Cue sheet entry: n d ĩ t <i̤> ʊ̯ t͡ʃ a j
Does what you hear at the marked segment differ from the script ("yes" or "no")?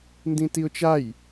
yes